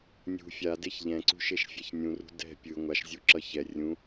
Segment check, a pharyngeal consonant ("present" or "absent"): absent